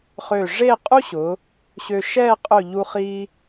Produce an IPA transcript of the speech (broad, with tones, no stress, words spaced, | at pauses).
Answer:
χø˧˩ʐe˥˧ qʼu˥ɕʊ˩˧ | ɕø˧ʃɛ˥˧ qʼɵ˧˩ ʎu˧χi˧